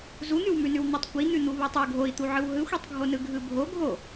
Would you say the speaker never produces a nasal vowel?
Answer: yes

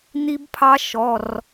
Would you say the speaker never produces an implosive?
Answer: yes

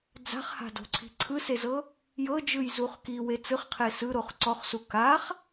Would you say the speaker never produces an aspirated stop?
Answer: no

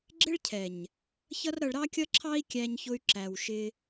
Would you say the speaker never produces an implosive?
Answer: yes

